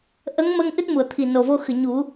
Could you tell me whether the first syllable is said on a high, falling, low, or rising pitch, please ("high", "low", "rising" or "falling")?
rising